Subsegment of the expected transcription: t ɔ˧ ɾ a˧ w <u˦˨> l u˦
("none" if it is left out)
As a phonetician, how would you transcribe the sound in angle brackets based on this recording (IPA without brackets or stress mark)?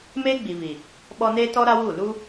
u˦˨